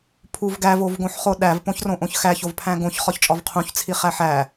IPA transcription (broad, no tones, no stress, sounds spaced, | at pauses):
pʰ u v ɡ æ v o v ɡ õ ħ χ o ɗ æ v p õ ç r õ ʔ õ ç x æ ç o v pʰ æ̃ ɡ õ ç χ ɒ ç t͡ʃʼ ɒ v qʰ ũ ç t͡sʰ i χ æ ħ æ